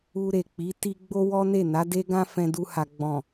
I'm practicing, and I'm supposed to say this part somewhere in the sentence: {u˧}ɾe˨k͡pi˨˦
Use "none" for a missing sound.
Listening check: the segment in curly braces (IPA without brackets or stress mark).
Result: u˧